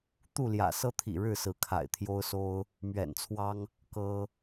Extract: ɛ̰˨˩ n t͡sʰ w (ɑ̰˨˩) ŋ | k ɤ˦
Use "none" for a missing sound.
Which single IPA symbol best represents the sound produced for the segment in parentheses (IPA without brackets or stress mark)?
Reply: ɑ˦